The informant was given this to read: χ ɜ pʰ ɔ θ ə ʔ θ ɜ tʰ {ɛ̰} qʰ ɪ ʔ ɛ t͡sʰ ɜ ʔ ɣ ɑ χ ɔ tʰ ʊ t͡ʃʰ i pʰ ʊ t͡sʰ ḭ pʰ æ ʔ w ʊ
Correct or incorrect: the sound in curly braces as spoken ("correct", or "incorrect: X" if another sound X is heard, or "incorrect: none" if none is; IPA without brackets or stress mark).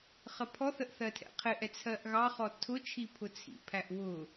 correct